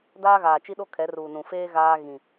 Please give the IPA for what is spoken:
d aː˦ ɣ aː˨ t͡ʃ i˦ ɗ o˦ kʰ ɛ˨˦ r uː˨ n ũ˨ f eː˦ ɣ aː˦ ɣ ĩ˨

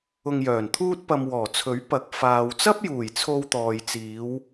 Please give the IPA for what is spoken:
ʊ˧ ŋ j œː˨˩ n t̪ʰ uː˥ t̚ p ɐ˧ m w ɔː˨˩ t͡sʰ ɵ˨˥ ɥ p ɐ˨˥ k̚ f aː˨ w t͡s ɐ˥ p̚ j uː˨˩ j t͡sʰ o˧ w t̪ ɔː˨ j t͡s iː˨˧ w

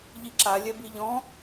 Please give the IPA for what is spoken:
ʎ i ǁ a lʲ ɛ b i ʎ ɔ̃

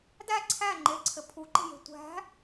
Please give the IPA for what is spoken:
d æ ǀʰ æ ŋ͡ǃ e ǀʰ ɘ pʰ u ǃ e̤ j e̤ tʷ æ̤

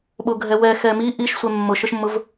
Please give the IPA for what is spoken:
ɓ o ɡʱ ɛ w ɛ x ɛ m i ʔ i ʃ sʷ ɛ mː ʊ ʃ ʊ ʃ mː ʊ v

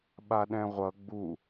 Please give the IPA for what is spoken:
ɓ a ɗ ɛ̃ ʁʷ ʌ ɡ͡b u

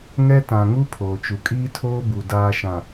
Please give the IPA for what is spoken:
ŋ ɛ˦ t ã˨ ŋ u˦ pʰ oː˨ t͡ʃ u˨ kʼ iː˦ tʰ oː˦ b u˨ d aː˨ ʃ ã˨

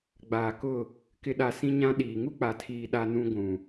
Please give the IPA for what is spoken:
ɡ͡b aː˨ k ʊ˦˨ | k ɪ˦ ɗ a˦ s ĩ˦ ɲ ã˦ ɗ iː˨ ŋ u˦ k͡p a˨ tʰ iː˨ ɗ a˦ n ũ˦ ɡʷ ũ˨

